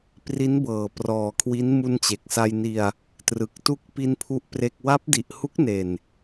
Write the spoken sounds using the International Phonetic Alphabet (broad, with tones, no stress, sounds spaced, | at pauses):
p r i˦˥ n b ɤː˨˩ p r ɔː˨˩ kʰ w i˦˥ n m u˧ n t͡ɕ e˨˩ k̚ s a˧ j n i˧ a̯ | t r ɯ˨˩ k̚ t u˦˥ k̚ p i˧ n pʰ u˥˩ ʔ p r e˥˩ k̚ w a˦˥ p̚ d i˨˩ ʔ h u˦˥ k̚ n e˨˩ n